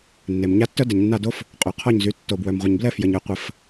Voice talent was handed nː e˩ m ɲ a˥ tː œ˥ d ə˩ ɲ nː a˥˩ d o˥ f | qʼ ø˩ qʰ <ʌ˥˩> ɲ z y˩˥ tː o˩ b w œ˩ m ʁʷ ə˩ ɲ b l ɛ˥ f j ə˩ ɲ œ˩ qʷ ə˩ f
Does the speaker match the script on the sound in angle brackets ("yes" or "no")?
no